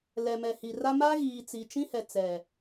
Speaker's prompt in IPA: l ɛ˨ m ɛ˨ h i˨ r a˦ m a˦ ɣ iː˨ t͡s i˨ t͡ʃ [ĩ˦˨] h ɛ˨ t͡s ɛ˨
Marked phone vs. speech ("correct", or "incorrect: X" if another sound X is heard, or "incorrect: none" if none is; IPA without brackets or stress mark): incorrect: ĩ˦